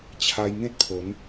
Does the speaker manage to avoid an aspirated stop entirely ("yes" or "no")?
no